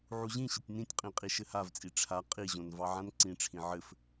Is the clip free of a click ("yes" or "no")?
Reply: no